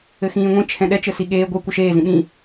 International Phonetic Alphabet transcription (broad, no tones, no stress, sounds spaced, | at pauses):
ɘ x ĩː ŋʷ ĩ t͡ʃʰ ɛ̃ ɗ ɛ t͡ʃ ɘ s i ɠ eː ɡʷ ɛ kʷ ə ʃ eː z ĩ ɓ ĩ